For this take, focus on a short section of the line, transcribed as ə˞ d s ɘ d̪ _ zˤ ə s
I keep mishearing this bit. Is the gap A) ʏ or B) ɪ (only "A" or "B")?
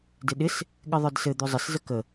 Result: A